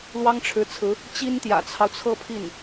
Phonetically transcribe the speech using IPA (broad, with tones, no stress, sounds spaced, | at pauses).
l w ɑ˥ ŋ ʈ͡ʂʰ ɻ̩˧˥ t͡sʰ ɹ̩˧˥ | t͡ɕ i˥ n t̪ j ä̰˨˩ t͡sʰ ɑ˦ ʊ̯ t͡sʰ ɤ˥˧ pʰ i˥˩ n